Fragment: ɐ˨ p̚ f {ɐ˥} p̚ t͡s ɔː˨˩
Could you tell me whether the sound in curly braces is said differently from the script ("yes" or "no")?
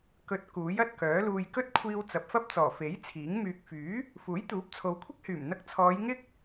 no